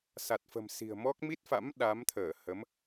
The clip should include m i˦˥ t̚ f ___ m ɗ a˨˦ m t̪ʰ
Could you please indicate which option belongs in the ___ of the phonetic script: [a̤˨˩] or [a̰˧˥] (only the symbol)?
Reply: a̰˧˥